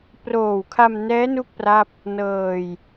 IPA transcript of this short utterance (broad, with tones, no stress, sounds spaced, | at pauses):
p r oː˨˩ w kʰ a˧ m n ɛː˦˥ n u˥˩ k̚ p r a˥˩ p̚ | n ɤː˧ j